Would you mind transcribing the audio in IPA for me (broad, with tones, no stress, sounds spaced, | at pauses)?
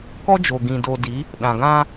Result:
k ɔ˦ d͡ʒ o˨ ɡ ĩ˨ d o˨ d i˨˦ | ɗ ã˨ ɡ ã˦